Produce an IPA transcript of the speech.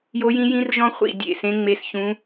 j o˦˥ j ĩ˦˥ j ĩ˦˥ r ʒ ɔ̃˦˥ χʷ ḭ˥˧ dʲ ḛ˥˧ s ẽ˦˥ ŋ͡m e˦˥ s ç ũ˦˥

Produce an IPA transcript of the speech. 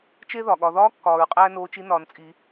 t͡ʃ e˥ ð ɒ˩ ɠ ɒ˩˧ ð ɒː˧˥ kː ɒː˩˧ ɹ qʼ æː˥ n oː˧˥ t͡ʃ i˧˥ n ɒː˩˧ n t͡sʼ i˩˧

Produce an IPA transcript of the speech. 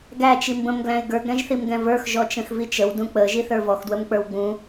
ɡ æ t͡ʃ i m b ə̃ m ɡ l æ̃ ɪ̯ ɡ ə˞ ɡ ɾ ɛ̃ ʒ θ i m ɡ ɛ̃ v ə˞ x ʒ ɔ t͡ʃ ə̃ x v i t͡ʃ ə w d ũ k͡p ə ʒ i θ ə˞ v ɔ x d w ə m k͡p ə˞ w ɡ͡b ũ

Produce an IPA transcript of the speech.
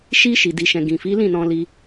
ʃ i˧ ʃ i˨ d i˨ ʃ ɛ̃˨ ɡ ĩ˨ f i˨˦ l ĩ˦˨ n ɔ̃˧ l i˧

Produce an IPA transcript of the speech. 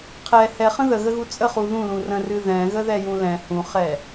qʰ ɛ h ɛ χ ə̃ ð ə ɣ ə ɣ u t͡sʼ ə χ u ð ũ l ũ r ə̃ r ɨ ð ɛ̃ ɣ ə ð ɛ j ũ l ɛ̃ h ũ χ ɛ

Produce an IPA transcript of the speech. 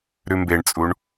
ɾ ʉ m b e ɳ t͡sʼ u ɳ

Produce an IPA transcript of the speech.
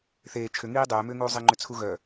θ eː t͡ʃʰ ʏ ŋ iː dˤ ʏː m ʏː ŋ uː zˤ i ŋ͡ǃ ʏ t͡sʰ u ɣ œ

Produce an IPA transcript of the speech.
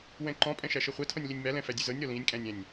w ɛ̃ ǃ ɔ̃ pʼ ɛ̃ ʃ æ ʃ ɤ χʷ ɛ tʰ ɔ̃ nʲ l i nʲ m æ l ɛ̃ f æ dʲ ʉ z ɤ nʲ ɾ ɔ l ĩ nʲ kʼ æ̃ nʲ æ̃ nʲ

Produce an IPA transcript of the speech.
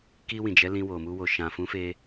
k i˧ w ĩ˨ d͡ʒ ɛ˨˦ l ĩ˧ w o˨ m u˧ w o˨ ʃ ã˨ f ũ˨˦ f e˧

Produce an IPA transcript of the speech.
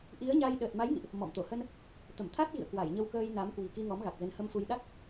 ʔ i˨˦ ə̯ ɲ a˧ j ɗ əː˨˩ t̚ m a˨˦ j ŋ ḭ˧˨ ʔ | m ɔ̰˧˨ m t̪ o˧˩ h ə˧ n | t̪ ə˧˩ m t̪ʰ a˦˥ t̚ ɣ ḭ˧˨ ə̯ k w a˧˩ j ɲ ə˧ w k əː˧ j n a˨˦ m k w i̤˨˩ k i˧ ŋ ɔ˨˦ m ɣ a˨˩ k̚ z ə˨˦ n h ə˧ m f u˧ j ɗ a˦˥ k̚

